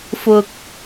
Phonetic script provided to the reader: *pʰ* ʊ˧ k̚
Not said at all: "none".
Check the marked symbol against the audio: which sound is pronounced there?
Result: f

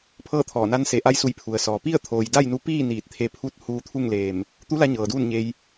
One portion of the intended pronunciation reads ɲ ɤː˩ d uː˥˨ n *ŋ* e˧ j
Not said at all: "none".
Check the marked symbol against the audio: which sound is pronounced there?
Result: ɲ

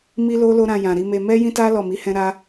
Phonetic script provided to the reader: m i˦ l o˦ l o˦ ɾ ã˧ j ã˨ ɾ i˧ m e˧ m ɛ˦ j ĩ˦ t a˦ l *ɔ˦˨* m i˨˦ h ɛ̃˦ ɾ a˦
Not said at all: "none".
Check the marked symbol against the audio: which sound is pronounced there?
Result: ɔ˦˨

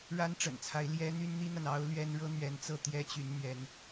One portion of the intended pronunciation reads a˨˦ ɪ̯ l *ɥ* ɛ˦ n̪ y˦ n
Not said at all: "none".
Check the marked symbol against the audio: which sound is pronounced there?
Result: j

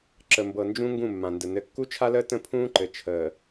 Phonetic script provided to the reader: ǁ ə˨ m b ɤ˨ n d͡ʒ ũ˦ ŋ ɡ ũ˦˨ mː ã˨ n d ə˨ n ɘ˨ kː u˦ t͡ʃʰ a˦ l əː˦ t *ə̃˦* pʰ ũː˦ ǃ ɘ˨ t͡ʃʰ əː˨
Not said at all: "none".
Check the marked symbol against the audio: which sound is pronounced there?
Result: ə̃˦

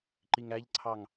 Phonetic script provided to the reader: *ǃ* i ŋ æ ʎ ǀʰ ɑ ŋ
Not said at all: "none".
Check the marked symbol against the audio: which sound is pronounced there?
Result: ǃ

